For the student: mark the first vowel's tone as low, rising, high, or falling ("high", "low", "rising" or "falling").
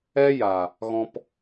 high